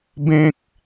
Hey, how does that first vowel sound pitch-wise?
high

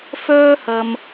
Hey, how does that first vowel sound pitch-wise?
high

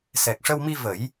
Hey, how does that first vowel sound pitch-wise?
low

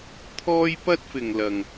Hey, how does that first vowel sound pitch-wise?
high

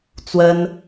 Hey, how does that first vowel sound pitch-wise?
high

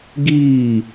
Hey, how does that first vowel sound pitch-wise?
falling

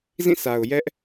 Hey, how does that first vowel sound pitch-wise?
falling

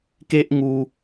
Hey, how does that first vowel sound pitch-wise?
high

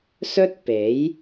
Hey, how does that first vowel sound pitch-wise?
high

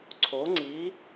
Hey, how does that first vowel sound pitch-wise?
rising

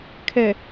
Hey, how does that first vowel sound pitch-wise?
low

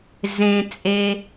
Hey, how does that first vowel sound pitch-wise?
low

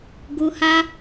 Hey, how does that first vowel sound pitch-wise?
high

